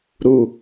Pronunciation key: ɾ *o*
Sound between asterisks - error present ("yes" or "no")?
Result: yes